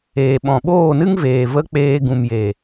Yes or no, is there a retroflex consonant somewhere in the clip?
no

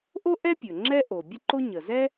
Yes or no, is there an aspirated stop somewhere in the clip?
no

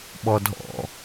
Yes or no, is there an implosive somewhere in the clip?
yes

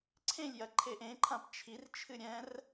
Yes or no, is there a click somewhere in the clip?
yes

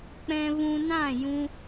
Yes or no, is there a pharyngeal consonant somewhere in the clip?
no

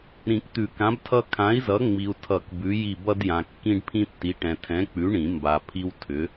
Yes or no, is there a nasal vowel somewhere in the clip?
yes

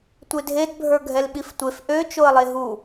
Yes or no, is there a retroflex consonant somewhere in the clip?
no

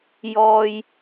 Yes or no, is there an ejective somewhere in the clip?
no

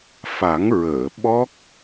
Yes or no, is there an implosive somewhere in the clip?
yes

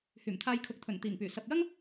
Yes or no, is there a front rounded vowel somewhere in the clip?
yes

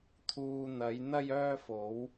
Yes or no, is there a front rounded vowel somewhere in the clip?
yes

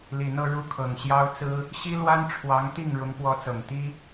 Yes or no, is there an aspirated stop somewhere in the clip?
yes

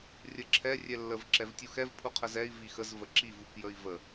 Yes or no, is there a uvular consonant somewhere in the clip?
yes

